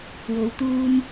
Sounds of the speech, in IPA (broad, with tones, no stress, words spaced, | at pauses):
wo˨˧wt̪uː˧m